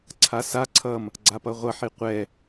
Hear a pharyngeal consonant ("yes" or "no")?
yes